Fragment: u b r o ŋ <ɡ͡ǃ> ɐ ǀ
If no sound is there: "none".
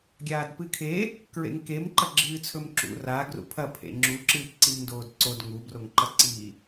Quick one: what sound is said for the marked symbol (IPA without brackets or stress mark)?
ǃ